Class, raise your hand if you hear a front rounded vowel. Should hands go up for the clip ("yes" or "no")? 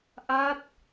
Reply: no